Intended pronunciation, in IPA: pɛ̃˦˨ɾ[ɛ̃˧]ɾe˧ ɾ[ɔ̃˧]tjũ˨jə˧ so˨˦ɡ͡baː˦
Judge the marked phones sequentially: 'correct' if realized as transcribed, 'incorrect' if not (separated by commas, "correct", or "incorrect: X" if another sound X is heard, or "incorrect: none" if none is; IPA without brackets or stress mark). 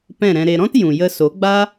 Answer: correct, incorrect: ɔ̃˦